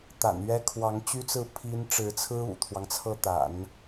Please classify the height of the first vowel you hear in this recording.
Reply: low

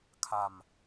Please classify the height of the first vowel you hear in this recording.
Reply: low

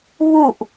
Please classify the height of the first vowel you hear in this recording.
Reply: high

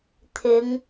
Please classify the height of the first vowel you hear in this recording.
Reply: high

